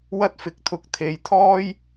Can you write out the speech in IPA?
w ɐ˥ t̚ f ɪ˧ k̚ t̪ʰ ʊ˧ k̚ t̪ʰ e˧ j t̪ʰ ɔː˥ j

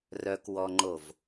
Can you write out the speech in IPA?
r œ k w ɔ ŋ͡ǃ o v

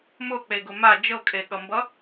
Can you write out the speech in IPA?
m ʊ k͡p e ɡ ʊ m a d͡ʒ ɤ kʼ e ɠ ʌ m b ʌ

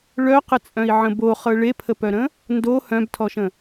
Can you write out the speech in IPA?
ɭ œ q ə t͡sʼ œ̃ i̯ ʕ ə̃ b o χ ɤ ɭ e pʰ ə p œ ɾ ə̃ | n d o h œ̃ b tʰ ɔ ʃ ə̃

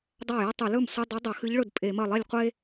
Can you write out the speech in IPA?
dˤ a˥˩ j ɐ˥ tˤ ʉ˧˩˧ l ɵ˥˩ m sʷ ɨ˧˥˧ dˤ ɵ˧˥ dˤ ɐ˧˩˧ x ɨ˧˥ ʎ ɭ ɵ˥˩ d pʼ e˧˩˧ m ɐ˥˩ lˠ i˥˩ lʲ qʷ e˥

